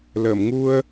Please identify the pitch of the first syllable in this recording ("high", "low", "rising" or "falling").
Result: low